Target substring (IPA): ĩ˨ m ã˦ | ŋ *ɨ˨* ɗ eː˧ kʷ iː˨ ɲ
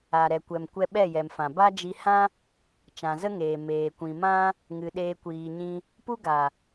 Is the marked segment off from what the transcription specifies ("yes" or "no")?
no